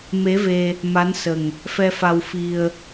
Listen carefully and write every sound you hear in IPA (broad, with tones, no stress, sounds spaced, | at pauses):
m e˧˥ v e˧ | m a˧˥ n s ə˨˩ ŋ | f ɛ˧ f a˧ w f i˧ ə̯